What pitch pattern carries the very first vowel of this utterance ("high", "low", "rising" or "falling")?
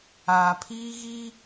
low